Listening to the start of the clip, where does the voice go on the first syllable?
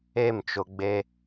falling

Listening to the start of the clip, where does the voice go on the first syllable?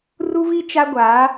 high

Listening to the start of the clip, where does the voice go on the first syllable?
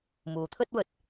low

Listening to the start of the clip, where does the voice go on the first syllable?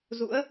rising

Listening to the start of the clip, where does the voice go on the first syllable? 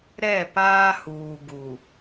falling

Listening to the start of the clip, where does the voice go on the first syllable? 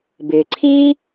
low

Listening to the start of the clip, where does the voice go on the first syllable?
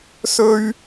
high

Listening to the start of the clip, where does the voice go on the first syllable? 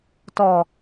low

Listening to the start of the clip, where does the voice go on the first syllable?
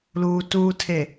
low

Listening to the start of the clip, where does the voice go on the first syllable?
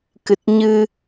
low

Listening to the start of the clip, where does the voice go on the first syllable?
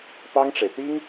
high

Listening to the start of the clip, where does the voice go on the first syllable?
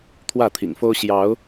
falling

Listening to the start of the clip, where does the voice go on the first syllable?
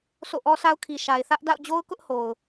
falling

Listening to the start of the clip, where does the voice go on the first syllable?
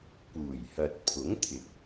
low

